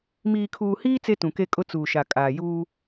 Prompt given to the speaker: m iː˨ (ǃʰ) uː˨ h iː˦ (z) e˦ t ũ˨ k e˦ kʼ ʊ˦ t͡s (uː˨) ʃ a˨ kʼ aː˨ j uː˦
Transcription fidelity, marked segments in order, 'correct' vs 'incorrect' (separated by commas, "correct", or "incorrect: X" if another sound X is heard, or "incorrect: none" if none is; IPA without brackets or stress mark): incorrect: kʰ, incorrect: t͡s, correct